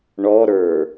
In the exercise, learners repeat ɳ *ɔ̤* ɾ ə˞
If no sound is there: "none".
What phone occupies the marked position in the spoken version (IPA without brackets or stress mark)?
ɔ